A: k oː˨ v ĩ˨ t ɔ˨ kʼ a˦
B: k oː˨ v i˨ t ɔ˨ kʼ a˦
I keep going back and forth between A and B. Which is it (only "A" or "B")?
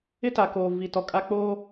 B